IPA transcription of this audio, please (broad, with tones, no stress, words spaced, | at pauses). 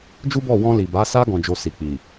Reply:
d͡ʒu˦bɔ˦˨ wɔ̃˧li˨ba˨˦sa˦ ɡɔ̃˧d͡ʒo˧ si˨k͡pi˨